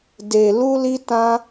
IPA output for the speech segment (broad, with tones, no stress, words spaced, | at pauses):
de˧lu˦li˦tã˦